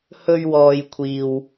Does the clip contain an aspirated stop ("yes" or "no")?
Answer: yes